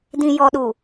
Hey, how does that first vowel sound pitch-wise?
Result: low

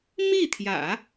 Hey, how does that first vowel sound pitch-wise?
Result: falling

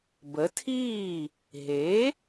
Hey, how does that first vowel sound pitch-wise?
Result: rising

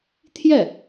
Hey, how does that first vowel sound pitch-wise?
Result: falling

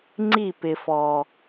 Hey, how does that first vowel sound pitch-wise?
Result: falling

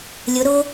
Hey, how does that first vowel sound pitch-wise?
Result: rising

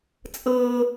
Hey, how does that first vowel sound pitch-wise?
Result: high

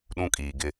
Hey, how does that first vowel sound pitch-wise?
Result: high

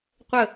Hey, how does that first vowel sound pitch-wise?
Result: falling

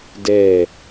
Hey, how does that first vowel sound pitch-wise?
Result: falling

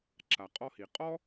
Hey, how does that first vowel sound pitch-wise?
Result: low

